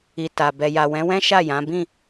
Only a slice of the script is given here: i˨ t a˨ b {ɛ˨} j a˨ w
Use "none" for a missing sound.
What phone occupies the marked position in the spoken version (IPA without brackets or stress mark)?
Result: ɛ˨